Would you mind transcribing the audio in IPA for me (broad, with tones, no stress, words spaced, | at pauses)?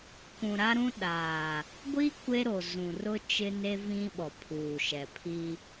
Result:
kũ˨ɾa˦ɾũ˦ ɗaː˨ | ɡʷi˦ kʷe˦ɾo˨ zũ˨rʊ˦ t͡ʃɪ˦ne˦vĩ˦ ɓɔ˨pʰuː˨ʃɛ˨pʰi˦